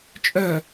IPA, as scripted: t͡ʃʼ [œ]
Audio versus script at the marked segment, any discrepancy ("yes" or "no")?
no